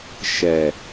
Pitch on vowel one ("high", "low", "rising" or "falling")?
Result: low